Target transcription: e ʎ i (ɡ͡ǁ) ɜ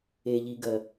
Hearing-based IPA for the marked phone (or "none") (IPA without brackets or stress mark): ɡ